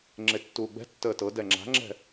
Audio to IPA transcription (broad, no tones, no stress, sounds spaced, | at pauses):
ŋ͡ǁ e tː uː ɡ͡b ɛ̤ tː əː t ɤ d ɛ ŋ͡ǁ a̤ ŋ͡ǁ ɛ̤